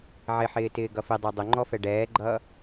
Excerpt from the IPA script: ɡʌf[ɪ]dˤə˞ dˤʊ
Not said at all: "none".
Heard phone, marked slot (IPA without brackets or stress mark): ɪ